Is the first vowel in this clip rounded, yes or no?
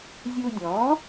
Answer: yes